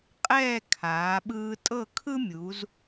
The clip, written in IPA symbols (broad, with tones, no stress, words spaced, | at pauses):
qʼɛː˥˧kʰaː˩˧ ɓɯː˧tʼɤ˥˧ kʰɯ˥mʲu˩˧z